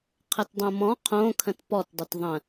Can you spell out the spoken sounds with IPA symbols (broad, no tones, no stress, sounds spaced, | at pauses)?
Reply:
qʰ ə t dˤ õ m ɔ̃ qʰ õ kʰ ə̃ t p ɔ t dˤ ʏ t ðˤ ə̃